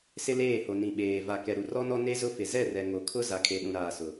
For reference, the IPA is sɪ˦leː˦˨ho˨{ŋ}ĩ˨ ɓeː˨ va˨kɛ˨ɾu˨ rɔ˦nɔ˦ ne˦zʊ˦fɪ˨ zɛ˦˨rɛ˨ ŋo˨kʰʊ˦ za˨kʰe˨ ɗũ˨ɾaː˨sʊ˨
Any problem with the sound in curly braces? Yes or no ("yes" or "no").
yes